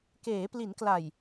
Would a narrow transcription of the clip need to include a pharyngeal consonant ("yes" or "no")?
no